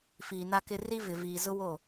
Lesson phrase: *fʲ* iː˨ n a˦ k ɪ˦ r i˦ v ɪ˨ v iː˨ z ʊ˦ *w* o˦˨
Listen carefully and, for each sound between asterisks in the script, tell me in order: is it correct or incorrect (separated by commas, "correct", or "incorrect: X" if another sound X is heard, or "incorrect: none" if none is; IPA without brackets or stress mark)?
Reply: incorrect: f, correct